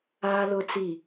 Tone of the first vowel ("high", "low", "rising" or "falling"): high